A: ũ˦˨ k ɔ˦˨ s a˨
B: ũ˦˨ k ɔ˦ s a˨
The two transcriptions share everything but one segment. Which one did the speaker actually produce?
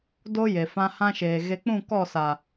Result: A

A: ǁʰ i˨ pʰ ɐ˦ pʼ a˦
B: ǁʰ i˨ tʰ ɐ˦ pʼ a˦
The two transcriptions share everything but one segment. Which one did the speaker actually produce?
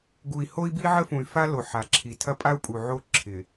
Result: B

